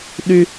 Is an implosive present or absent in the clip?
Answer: present